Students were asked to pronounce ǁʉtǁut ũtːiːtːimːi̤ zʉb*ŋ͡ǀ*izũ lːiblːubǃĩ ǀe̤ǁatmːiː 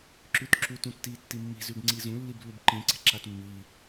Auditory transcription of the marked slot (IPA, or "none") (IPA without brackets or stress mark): ŋ͡ǀ